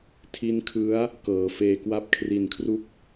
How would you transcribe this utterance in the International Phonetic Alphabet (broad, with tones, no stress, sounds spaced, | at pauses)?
tʰ i˦˥ n kʰ ɯ˦˥ a̯ | k ɤː˩˦ f eː˧ k w a˥˩ p̚ kʰ r i˨˩ n kʰ r u˦˥ k̚